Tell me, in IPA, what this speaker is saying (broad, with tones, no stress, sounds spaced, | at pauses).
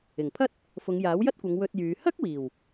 ɪ˨˩ ŋ pʰ ɐ˥ t̚ | f ʊ˨˧ ŋ j aː˨˥ w j ɐ˥ t̚ kʷ ɐ˨˧ ŋ w ɵ˧ t̚ j yː˨˧ h ɐ˥ k̚ w iː˨˩ w